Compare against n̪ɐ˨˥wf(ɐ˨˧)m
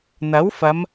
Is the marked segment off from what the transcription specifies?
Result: no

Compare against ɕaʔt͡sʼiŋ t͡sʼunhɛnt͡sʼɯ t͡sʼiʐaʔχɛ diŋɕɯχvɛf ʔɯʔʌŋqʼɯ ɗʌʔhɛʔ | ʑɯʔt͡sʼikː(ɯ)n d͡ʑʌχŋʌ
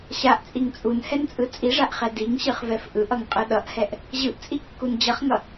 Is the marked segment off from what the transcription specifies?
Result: yes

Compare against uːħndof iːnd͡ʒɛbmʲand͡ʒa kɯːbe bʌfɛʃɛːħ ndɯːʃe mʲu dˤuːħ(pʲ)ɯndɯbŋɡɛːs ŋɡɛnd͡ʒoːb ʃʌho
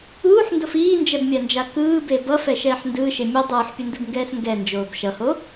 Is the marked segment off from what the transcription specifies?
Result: no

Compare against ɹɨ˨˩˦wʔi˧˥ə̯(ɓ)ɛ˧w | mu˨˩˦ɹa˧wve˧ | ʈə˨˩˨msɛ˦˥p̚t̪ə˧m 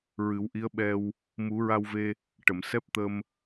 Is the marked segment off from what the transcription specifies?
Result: no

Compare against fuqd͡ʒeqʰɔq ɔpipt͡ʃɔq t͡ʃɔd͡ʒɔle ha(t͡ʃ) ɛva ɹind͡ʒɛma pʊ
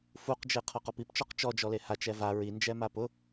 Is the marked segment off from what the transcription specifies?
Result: no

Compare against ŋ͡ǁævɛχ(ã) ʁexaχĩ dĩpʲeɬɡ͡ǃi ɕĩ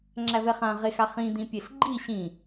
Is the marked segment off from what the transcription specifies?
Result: no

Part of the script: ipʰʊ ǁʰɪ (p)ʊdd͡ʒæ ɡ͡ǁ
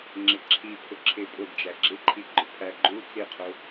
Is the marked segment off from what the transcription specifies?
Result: yes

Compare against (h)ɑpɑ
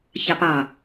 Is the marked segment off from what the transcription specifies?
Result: yes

